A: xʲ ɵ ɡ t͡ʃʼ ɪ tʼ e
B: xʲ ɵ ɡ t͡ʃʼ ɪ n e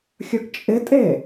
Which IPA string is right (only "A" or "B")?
A